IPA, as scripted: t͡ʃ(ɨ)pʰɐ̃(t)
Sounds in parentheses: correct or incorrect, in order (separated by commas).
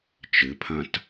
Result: correct, correct